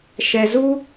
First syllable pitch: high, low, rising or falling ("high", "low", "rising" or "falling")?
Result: low